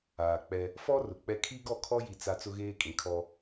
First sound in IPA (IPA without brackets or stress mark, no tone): aː